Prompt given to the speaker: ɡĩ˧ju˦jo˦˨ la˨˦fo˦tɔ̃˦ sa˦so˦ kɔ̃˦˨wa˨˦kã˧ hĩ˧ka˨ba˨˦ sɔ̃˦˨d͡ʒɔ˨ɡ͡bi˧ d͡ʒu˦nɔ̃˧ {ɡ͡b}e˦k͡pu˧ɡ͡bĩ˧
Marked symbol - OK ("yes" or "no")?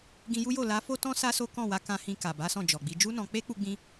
no